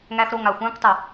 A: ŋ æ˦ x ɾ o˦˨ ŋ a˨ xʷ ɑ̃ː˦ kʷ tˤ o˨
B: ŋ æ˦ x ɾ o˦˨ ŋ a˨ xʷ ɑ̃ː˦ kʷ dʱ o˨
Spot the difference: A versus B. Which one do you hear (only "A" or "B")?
A